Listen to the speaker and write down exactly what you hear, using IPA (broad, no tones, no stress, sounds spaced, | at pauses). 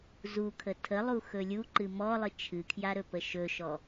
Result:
z u kʰ ə tʰ ə lˠ u x ɵ lʲ u ǃ ɨ m ɔ lˠ ɨ t͡ʃʰ ɨ kʰ j a ɾ ɵ p ə ʃ ɵ ʃ ɔ